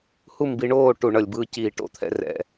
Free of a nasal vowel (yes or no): yes